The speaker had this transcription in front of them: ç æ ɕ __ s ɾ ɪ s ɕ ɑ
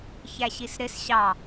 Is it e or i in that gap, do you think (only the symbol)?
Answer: i